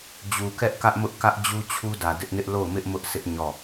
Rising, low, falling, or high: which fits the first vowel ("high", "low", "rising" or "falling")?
low